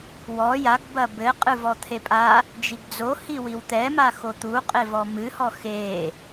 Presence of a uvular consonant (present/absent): present